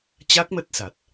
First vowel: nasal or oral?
oral